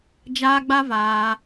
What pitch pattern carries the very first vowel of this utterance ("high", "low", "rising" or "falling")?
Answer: high